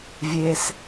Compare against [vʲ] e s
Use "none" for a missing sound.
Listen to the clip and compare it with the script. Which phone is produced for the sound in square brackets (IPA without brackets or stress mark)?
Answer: vʲ